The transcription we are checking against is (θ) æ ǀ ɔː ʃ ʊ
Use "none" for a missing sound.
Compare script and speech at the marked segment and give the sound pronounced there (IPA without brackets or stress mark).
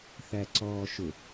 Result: θ